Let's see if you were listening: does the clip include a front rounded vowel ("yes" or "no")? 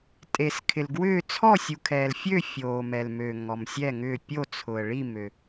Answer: yes